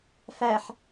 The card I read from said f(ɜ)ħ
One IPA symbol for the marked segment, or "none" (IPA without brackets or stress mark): æ